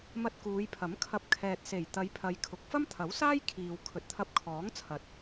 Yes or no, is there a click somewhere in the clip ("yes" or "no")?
no